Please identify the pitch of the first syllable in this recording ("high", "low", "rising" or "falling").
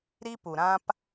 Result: high